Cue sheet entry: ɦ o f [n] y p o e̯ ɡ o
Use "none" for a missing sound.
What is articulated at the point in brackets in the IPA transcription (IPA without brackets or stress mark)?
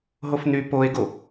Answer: n